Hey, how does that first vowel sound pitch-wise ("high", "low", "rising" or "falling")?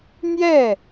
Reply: falling